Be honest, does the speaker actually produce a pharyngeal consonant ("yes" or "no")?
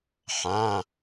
yes